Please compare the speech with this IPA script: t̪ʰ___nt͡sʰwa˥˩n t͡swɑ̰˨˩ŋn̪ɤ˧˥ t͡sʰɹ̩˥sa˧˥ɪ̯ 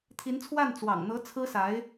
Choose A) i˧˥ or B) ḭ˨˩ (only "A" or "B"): A